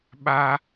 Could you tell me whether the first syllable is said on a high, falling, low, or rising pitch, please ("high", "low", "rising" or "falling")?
high